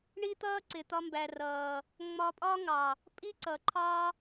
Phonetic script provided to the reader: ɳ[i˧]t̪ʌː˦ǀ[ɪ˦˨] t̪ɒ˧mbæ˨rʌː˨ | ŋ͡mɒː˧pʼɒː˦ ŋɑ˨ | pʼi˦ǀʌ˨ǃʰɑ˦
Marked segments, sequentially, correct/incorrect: incorrect, incorrect

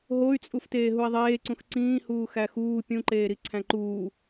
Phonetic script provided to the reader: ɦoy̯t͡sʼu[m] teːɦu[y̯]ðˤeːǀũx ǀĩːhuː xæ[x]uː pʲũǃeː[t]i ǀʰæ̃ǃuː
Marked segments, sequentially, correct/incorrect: incorrect, incorrect, correct, incorrect

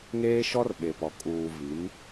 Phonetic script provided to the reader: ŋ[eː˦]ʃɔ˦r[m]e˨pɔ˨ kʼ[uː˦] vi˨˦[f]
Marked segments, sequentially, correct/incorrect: correct, incorrect, incorrect, incorrect

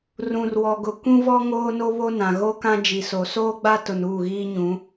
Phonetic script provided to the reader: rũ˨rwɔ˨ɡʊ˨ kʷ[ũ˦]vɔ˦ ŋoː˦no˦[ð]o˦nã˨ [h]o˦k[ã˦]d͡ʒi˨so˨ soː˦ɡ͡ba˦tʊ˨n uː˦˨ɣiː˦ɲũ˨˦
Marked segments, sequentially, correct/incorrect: correct, incorrect, incorrect, correct

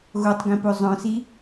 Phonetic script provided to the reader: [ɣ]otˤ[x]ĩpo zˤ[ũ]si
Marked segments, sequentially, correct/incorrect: correct, incorrect, incorrect

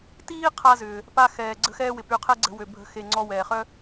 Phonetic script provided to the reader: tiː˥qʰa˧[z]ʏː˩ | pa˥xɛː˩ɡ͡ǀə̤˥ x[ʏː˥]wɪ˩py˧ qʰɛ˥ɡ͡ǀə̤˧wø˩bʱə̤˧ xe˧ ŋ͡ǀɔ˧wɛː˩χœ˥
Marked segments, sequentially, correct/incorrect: correct, incorrect

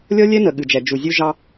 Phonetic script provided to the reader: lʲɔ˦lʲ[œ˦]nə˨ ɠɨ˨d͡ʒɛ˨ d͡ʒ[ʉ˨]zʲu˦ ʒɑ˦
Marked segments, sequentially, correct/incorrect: incorrect, incorrect

